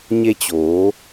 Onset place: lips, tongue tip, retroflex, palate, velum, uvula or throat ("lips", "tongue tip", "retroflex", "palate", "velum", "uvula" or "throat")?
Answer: palate